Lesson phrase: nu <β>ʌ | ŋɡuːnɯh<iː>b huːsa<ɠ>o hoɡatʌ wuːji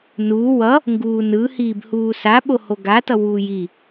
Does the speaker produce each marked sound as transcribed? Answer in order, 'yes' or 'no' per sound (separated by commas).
no, yes, no